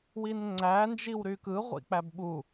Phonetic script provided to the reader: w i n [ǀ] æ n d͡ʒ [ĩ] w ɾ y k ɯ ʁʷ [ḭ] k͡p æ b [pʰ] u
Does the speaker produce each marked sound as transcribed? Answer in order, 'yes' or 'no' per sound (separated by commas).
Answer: no, no, yes, no